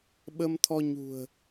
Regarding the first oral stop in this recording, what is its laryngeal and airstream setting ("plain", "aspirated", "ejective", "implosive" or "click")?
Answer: implosive